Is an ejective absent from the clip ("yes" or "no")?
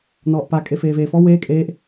no